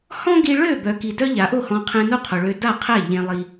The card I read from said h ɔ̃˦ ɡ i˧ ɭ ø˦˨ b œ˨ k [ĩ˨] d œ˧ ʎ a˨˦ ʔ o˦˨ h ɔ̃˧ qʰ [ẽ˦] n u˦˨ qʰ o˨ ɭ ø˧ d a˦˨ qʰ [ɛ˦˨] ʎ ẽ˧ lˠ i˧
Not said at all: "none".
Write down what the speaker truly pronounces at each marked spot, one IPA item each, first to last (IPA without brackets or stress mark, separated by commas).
i˨, ẽ˧, ɛ˦˨